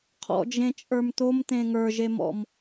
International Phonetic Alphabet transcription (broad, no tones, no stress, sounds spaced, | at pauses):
qʰ ɔ̰ d͡ʒ ẽ t͡ʃʼ ə˞ m t̪ o m t̪ ẽ ŋ ə˞ ʒ e m ɔ̰ m